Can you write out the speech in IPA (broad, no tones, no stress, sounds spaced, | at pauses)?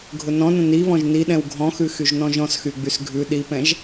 ɡʱ ʊ n ɔ̃ n ə̃ n i β ɔ̃ ʒ n i ɗ ɛ̃ w ɡʱ ɔ̃ x ʉ x y ʒ n ɔ̃ ʒ ɔ̃ s x y ɡ͡b y s ɡʱ ʉ ɗ i p ɛ̃ ʒ